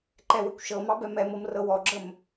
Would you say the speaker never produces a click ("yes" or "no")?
no